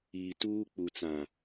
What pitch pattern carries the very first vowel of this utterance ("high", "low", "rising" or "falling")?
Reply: low